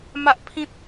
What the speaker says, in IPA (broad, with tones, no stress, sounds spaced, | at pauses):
m a˦ ʔ pʰ ĩ˦ t̚